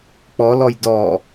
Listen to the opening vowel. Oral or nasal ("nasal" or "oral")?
oral